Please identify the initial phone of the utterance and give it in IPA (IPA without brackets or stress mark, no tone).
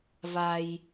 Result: v